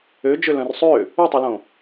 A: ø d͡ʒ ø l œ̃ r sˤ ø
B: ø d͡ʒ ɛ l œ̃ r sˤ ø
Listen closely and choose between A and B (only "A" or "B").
A